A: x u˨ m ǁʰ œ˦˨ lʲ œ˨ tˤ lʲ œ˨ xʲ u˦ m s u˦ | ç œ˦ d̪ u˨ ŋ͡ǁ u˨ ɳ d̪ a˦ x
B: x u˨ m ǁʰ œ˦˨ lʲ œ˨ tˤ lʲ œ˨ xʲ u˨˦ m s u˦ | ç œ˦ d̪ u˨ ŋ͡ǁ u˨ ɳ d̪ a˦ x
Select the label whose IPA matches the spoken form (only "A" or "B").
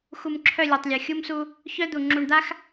A